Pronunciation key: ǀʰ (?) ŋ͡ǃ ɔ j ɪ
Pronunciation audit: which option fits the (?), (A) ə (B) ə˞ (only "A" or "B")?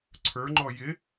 B